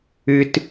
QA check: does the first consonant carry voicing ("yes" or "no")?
no